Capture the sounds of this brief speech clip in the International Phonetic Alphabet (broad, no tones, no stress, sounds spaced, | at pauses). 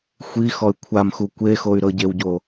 xʷ i x ɔ y̯ kʷʰ a m x u kʷ e x o y̯ ɾ ɤ ɟ e w ɟ o